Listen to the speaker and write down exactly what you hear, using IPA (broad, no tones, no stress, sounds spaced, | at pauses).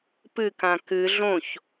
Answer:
p ɨ k ã k ɨ ɮ õ ç